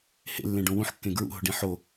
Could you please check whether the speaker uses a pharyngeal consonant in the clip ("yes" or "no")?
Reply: yes